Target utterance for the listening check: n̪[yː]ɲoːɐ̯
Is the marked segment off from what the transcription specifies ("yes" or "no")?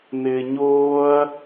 yes